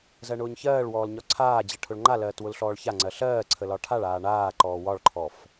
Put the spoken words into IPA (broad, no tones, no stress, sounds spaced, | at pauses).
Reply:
z ɜ ɳ ʊː ɲ ç ɜː ɭ w ɔː l ɲ ɒ ǀʰ aː d͡ʑ ɜ ʈʰ ʊ ɭ ŋ͡ǃ a l ɜː t w ʊ l ɬ ɔː ɭ ç a ŋ͡ǀ ɜ ɬ ɜː ǀʰ ə l ɒ ʈʰ a ɭ aː ɳ aː ǃ ɔː w ɒ ɭ ǃʰ ɔ f